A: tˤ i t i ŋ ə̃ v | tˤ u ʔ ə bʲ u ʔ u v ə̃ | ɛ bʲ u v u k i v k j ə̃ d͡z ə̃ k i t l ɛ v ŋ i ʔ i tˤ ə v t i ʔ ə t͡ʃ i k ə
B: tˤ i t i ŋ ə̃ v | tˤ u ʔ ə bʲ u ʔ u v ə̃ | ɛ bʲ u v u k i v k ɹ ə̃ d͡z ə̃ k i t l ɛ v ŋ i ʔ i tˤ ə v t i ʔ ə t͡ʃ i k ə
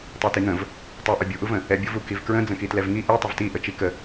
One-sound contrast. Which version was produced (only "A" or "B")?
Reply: B